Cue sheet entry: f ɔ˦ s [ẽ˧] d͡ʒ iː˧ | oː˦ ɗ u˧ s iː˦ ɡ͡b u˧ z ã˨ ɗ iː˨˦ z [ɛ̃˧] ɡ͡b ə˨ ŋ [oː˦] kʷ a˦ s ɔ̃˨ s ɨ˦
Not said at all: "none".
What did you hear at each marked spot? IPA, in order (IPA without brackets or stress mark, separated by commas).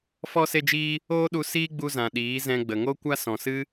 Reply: e˧, ɛ̃˧, o˦